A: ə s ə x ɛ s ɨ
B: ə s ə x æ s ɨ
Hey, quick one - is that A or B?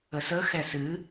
A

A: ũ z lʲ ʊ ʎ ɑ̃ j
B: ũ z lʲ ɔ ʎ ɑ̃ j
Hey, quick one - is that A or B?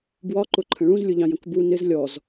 A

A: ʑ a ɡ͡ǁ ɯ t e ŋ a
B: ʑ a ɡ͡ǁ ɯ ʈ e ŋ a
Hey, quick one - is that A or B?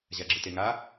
A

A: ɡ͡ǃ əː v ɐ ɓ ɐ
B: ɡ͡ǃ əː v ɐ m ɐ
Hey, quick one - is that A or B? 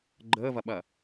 A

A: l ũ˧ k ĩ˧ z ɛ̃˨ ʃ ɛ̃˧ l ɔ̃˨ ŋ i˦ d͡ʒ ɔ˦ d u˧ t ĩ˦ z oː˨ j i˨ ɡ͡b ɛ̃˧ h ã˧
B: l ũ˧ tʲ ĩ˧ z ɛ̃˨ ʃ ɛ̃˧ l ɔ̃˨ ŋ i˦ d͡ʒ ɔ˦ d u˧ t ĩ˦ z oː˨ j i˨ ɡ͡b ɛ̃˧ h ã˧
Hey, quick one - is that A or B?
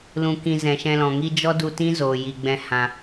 A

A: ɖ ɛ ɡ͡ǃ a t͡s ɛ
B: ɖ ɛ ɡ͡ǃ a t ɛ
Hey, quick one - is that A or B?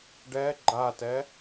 B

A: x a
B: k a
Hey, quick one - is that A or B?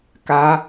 B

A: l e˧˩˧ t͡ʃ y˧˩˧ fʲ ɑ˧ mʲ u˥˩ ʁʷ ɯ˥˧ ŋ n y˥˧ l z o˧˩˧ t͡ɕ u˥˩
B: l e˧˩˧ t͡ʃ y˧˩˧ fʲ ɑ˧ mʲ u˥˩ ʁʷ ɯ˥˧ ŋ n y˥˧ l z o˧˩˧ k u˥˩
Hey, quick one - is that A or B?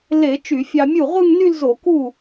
B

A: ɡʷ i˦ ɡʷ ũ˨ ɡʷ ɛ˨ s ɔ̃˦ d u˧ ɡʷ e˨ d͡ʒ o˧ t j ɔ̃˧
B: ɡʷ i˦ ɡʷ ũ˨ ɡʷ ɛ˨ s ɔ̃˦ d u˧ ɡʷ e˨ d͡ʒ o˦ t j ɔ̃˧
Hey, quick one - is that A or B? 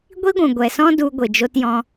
A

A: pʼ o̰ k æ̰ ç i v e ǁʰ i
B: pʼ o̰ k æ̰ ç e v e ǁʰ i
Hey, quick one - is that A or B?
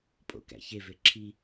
B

